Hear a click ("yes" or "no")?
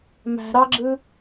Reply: yes